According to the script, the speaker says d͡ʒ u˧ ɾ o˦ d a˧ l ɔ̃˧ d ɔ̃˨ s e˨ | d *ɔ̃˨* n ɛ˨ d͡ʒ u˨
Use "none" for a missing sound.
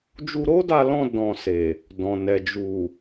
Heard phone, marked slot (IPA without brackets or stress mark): ɔ̃˨